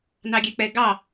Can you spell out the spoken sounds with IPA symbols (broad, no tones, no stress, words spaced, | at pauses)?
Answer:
nɑɡʲɛk͡pɛ ɡɑ